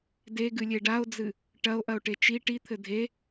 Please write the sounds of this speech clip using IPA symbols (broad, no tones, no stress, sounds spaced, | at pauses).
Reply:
d e ɡ ɨ lʲ e ɖ a o̯ d͡z ɨ | ʈ ɐ o̯ ʔ ɐ o̯ ʈ e t͡ʃ i ʈ i t̪ʰ ɘ dʱ e